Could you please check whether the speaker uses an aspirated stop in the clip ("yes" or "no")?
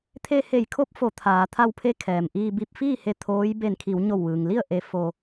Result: yes